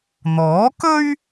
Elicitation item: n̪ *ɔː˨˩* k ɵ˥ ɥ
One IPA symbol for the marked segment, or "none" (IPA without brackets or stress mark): ɔː˨˥